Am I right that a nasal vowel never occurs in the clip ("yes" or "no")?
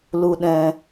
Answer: no